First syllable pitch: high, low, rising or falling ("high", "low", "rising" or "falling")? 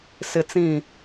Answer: high